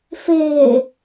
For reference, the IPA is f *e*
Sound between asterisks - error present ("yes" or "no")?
yes